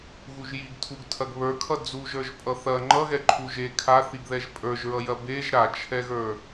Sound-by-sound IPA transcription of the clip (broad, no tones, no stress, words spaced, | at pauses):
ɣuʒjiɡ tʰuɡtʰɐɡβə˞kʰʌ d͡zuʒ ə˞ʒpʼʌθɐ ŋ͡ǃʌɣɛ ǃʰuʒe kʰaθiɡðɛʒ pʼə˞ʒɹʌjɐ beʒ ɾat͡ʃʰɛɣə˞